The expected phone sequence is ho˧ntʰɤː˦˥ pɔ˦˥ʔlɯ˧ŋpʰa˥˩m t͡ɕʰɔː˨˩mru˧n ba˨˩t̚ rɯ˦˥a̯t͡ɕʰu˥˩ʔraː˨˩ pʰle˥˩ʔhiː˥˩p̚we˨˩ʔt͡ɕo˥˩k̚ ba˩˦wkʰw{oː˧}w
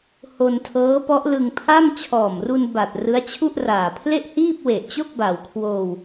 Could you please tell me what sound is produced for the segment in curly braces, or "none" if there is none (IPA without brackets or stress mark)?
oː˧